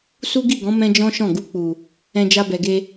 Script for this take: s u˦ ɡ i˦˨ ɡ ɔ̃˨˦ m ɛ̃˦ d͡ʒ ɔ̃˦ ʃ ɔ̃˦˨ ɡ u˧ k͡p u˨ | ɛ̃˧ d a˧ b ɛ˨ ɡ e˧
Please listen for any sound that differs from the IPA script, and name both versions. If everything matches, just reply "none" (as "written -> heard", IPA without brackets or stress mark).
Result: d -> d͡ʒ